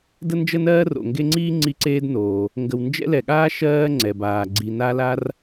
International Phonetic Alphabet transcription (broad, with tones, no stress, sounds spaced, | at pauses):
d ə˥ n d͡ʒ ə˥ n ɜː˥ r o̰˩ ŋ ɡ e˦ ŋ͡ǀ iː˥ ŋ͡ǀ i˦ ǀ eː˦ d n oː˩ | ŋ ɡ ə˨ w n d͡ʒ ɛ̰˥ l ɛ˨ ɠ aː˥ ʃ ɜː˥ ŋ͡ǀ ɛ˩ b aː˩ ɡ͡ǀ i˨ n a˦ l a˦ r